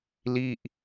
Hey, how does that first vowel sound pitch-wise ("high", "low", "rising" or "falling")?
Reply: falling